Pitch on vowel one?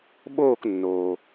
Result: falling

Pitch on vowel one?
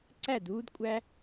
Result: falling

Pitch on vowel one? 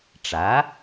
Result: rising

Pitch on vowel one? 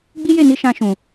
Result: high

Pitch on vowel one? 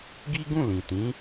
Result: high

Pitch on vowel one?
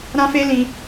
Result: high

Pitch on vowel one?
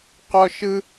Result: high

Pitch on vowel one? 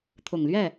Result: low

